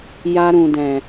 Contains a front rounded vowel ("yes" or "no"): no